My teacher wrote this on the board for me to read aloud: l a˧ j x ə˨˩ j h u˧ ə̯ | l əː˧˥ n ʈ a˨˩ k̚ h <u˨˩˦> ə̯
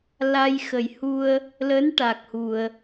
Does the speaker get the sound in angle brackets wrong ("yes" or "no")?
yes